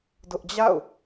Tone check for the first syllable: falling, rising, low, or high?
high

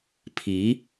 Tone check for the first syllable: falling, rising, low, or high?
rising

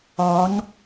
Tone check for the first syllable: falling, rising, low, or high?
rising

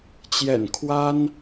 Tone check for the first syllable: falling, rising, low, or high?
low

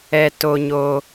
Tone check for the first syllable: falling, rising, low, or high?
high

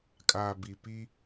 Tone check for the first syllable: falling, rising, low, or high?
low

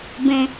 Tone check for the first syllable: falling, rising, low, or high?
high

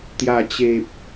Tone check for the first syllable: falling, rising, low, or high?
low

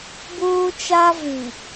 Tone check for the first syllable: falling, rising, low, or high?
high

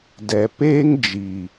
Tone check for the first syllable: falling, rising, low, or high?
low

